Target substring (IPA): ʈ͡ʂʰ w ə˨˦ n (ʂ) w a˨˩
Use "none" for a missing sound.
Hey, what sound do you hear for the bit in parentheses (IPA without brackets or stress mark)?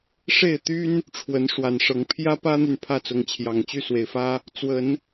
ʂ